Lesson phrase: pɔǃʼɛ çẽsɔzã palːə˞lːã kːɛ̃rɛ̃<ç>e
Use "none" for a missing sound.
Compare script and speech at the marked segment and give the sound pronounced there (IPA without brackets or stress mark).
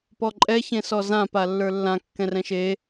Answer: ʃ